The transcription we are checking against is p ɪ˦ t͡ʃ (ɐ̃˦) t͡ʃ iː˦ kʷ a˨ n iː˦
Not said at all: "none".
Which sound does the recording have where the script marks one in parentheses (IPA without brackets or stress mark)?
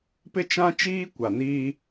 ã˦